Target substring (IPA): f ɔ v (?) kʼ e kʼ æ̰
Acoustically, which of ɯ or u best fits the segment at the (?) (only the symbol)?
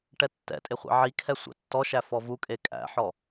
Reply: u